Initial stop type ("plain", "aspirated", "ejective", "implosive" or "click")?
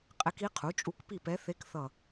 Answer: ejective